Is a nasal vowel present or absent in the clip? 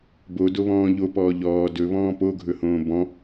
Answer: present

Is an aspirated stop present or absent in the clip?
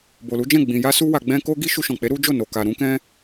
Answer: absent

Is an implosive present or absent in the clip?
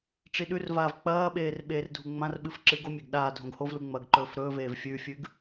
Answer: present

